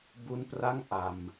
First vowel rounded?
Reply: yes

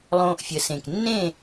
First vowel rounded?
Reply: yes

